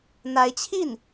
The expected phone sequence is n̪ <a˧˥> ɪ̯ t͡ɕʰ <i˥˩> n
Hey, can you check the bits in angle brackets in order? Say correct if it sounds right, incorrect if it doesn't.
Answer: correct, correct

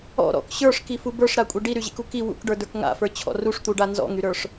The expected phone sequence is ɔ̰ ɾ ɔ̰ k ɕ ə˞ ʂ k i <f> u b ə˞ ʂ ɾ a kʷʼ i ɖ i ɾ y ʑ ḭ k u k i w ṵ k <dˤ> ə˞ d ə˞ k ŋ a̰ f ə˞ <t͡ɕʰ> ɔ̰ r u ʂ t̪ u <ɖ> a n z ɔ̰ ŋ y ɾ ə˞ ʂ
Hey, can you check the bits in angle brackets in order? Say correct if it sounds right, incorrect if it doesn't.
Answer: correct, incorrect, correct, correct

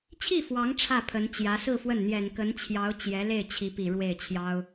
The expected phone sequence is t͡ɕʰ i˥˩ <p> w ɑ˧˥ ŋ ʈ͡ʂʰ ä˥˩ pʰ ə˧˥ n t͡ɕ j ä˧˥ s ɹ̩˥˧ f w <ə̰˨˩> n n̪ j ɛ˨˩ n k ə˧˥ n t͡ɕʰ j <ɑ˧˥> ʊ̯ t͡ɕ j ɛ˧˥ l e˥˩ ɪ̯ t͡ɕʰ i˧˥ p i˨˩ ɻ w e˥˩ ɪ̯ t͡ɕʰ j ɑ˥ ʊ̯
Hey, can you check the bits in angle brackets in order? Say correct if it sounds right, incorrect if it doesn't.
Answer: incorrect, incorrect, correct

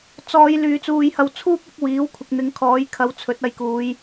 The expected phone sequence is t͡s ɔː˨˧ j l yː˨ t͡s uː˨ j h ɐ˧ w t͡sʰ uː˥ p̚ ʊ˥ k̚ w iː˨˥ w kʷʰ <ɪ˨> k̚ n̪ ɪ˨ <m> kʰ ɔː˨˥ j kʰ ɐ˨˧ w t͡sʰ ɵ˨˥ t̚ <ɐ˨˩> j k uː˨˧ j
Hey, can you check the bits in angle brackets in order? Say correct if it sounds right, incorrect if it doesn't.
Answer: correct, incorrect, incorrect

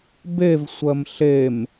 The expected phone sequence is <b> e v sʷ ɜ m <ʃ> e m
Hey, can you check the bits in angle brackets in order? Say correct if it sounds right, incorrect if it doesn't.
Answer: correct, incorrect

